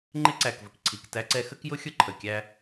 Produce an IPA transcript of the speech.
ŋ͡ǃɪ˦ǀæ˨kvə˨kǀʰi˨k tæ˦ǀɛ˦ xə˦kjʊ˦xʲʊ˦ǃʰə˨ kʲæ˦

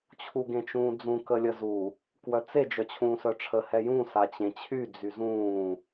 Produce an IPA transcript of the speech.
t͡ɕʰuɡẽt͡ʃũːd͡zũ kəlʲəzu | kwœt͡se d͡ʒœt͡ɕʰũːsœʈ͡ʂʰə hɛjũ sat͡ɕẽt͡ɕʰy d͡zyzũː

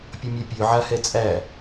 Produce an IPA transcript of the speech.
pʲʌmʲɛpʲø ʕahɛt͡sʼæ

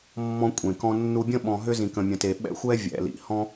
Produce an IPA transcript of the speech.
mːɔ̃˦kʷʼẽ˨kɔ̃˦ nːu˧bʲə̃˦ ɓɔ̃˧ɦʏ˦ zĩ˨kə̃˨mʲə̃˨ te˨ɓɛ̰˦ xʷɛ˦ vʲɛ̰˨ lḭ˨ hɔ̃˦

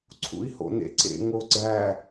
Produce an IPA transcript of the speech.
ǀʰṵi̯ho̰nḛǀḛ ŋoɡ͡ǀæ

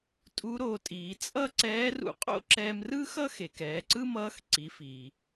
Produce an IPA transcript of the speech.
tʼu˧˥ɾo˩˧tʼiː˩˧ t͡sʼʌː˥ǀɛː˧˥ rṵ˧qʼo̰˥ǁɛ˧m rɯ˥xʌ˥xe˩k ɛː˩˧ǀɯ˥mʌː˧˥x ǀi˩˧fiː˩

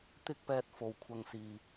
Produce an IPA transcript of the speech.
t̪ɪ˥k̚pɛː˧t̚fo˨w kʷʰɐ˨ŋsiː˨

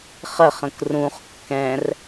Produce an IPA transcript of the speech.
χəχə̃k rũχ kːɛ̃r

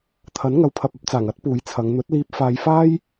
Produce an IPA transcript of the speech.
t̪ʰɐ˨˥n ŋɐ˨wpʰɐ˨p̚ɐ˧p̚t͡saː˨˩ŋ ɐ˥t̚puː˨˧jt͡sʰɐ˨˧ŋ n̪ɵ˨˥t̚liː˧p̚ faː˧j faː˥j

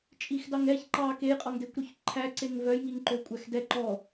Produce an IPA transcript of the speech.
t͡ʃʼixdɑŋɛç ǃɑ kejqʼɔŋdekʷɾyç ǃʰæǀeŋ vœjŋiŋǃø kʷʼæxdɛ ǃɔ

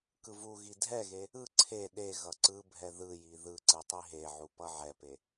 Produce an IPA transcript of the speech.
kɯvuɣi dʱɛɣe | ɯ ǀʰe ɗe ɣʌǀɯbʱɛ ðɯji ðɯ ǀɯtˤiɦeʕu pʌʕɛpe

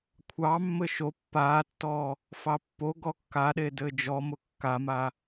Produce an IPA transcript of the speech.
kʷʰɑmːɘ ʃo pːaːtːɔː | fɑpːoɡɔ kːaɗe dɘːd͡ʒɔmʊ kːama

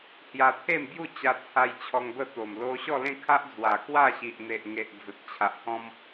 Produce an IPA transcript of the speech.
hja˧t̪ʰe˥˧mbju˥˧t͡ɕa˧ t͡sʰa˧j t͡ɕʰɔ˧ŋbə˥˧t̪o˨˩m lo˧ɕɔ˥˧lẽ˥˧kʰa˦ʔ d͡zwa˨˩kwa˥˧ɕi˨ʔ n̪e˨ʔŋe˨ʔ d͡zə˨t̚t͡ɕʰa˨ʔhɔ̃˦m

